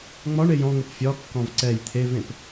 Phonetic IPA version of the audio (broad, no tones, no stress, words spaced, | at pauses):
ŋ͡mɒɳej ɔ̃ŋəp fʲɒkːɔ̃v ǀɛj t̪ʰevẽp